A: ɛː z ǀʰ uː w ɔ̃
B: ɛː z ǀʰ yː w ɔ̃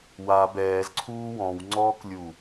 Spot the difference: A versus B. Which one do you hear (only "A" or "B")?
A